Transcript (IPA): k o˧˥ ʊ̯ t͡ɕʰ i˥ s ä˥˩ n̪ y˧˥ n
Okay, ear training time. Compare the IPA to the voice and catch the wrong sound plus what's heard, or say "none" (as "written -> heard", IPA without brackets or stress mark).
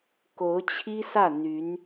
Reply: none